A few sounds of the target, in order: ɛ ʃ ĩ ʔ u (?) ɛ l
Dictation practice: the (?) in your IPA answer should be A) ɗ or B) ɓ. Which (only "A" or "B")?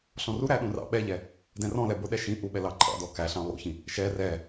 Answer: B